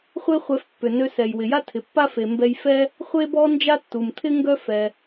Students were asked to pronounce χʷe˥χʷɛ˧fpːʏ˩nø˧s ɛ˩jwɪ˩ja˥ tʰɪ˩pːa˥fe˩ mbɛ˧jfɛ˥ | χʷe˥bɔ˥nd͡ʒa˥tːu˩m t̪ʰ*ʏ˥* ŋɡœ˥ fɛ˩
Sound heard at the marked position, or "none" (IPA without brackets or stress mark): ɪ˥